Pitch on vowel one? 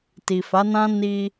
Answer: low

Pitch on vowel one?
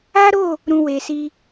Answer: high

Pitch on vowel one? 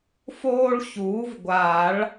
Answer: high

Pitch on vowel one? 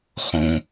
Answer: low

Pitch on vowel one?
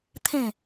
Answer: falling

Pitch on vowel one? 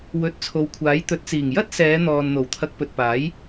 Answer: rising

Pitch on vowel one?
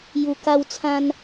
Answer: low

